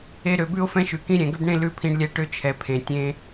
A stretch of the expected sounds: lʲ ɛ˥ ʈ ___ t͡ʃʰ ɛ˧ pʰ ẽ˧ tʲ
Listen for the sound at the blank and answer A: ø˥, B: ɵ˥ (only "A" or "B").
A